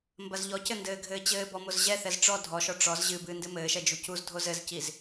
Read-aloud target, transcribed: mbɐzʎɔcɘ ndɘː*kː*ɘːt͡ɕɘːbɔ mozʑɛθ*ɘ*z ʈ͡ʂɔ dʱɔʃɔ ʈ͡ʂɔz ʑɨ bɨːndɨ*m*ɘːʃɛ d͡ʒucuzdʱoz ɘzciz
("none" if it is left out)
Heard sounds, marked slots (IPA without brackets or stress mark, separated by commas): ɡʱ, ɛ, m